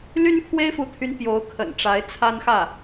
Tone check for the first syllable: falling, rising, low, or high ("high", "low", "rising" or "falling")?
high